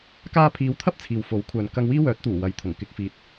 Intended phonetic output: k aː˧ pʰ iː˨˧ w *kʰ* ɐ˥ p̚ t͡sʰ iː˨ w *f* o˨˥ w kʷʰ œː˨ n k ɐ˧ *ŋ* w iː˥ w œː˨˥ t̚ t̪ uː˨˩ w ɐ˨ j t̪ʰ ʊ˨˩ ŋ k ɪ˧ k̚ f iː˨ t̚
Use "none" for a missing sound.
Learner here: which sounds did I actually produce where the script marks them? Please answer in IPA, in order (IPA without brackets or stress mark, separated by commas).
t̪ʰ, f, ŋ